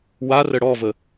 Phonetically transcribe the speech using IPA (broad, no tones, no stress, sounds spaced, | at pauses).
w a r ə ɽ ɔ v ə